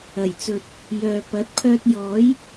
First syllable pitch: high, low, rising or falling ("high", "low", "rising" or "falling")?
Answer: low